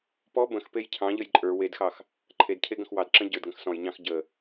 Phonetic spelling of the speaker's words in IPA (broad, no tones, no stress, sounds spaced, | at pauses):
p ɔ b ə̃ x p e j cʰ ɑ̃ ʎ ə j ǃʼ ə˞ w e d x ɑ x | ǃʰ e d cʰ e ɡ ə̃ x w ɑ d ǁ ə̃ ɟ ə˞ d ɡ ə̃ x s ɔ̃ j ɲ ɑ̃ x ɟ ə